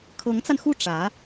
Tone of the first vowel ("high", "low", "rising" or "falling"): rising